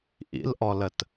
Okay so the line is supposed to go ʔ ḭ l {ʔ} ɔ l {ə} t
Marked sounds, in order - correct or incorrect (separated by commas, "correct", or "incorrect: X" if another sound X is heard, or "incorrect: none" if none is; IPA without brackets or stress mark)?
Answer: correct, correct